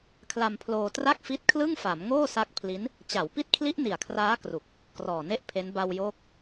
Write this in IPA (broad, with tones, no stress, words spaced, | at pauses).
kʰla˧mpʰloː˧tra˥˩k̚fi˦˥t̚ kʰlɯ˥˩ŋfa˩˦m ŋoː˥˩sa˦˥k̚pʰli˦˥n | t͡ɕa˩˦wpi˦˥t̚kʰli˦˥ʔ ni˨˩a̯kʰraː˦˥kru˨˩k̚ | krɔː˨˩ne˥˩ʔpʰe˦˥n ba˧wjoː˦˥k̚